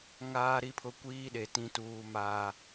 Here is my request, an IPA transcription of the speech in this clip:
ŋaː˦ɾi˦pʰʊ˦ kʷiː˦ɗe˨ tĩ˦tuː˦maː˦

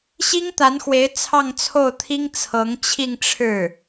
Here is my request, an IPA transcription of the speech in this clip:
ɕi˥ŋt̪a˧˥nxwe˧˥ɪ̯ t͡sʰɑ˥˧ŋt͡sʰo˥˩ʊ̯t̪ʰi˥ŋ t͡sʰɤ˧˥ŋt͡ɕʰi˥˧ŋʈ͡ʂʰɻ̩˥˩

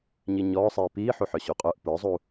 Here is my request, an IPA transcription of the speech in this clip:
ɲiɲɔːsˤiː piːħuħœ ɕoqʼœʔ pə˞zˤu

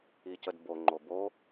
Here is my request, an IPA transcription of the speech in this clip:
icədbo ŋ͡ǃobo

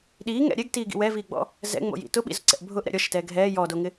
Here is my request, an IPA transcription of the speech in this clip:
ɗiːŋɛ̰ ɾʲɛɡtiːɡḭ wɛviːɡ͡bɔ̰ | zɛ̰ŋ͡mo̰jḭ tʊɓḭzʊǀɛ̰ʔ bʱʊʔɾɛ̰ ɾʲɔʃɪtɛː ɡʱɛː jɔdoŋɪ

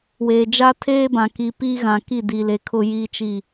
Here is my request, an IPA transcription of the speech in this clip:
weː˨d͡ʒa˦tʰeː˦bã˨ ki˨ piː˦ ɣã˨ki˦˨di˨le˨ kʰʊ˨jiː˨t͡ʃi˨

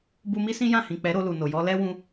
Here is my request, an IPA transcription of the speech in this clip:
bu˧mi˦ sĩ˦jã˦˨hĩ˨ k͡pɛ˨˦ɾo˧lu˨no˨ jɔ˧lɛ˦wũ˧

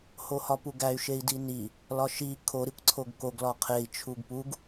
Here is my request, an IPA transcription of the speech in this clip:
hohɒpuɡæy̯ ʃei̯dini | lɒʃi kʰo ɾikʷǀʰoɡkoɡ lɒqʰei̯ t͡ʃʰuɡpuɡ

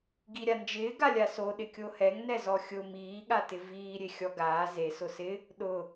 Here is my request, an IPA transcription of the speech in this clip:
ɡiɾʲand͡ʒɪː ɡalʲaso ɗɪkʲohɛŋ nɛzɔxʲʊ miː ɠatɪviː ɾʲexʲɔɡaː ze sʊsɪ | ɗʊ

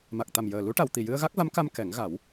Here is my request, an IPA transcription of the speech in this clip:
ma˨˩k̚t̪a˨˩mjəː˨˩lu˧˥ ʈa˨˩˨wt̪i˨˩jɨ˧ə̯ɣa˦˥k̚ va˧˥mka˧m kɛ˨˩˦ŋ ɣa˨˩˦w

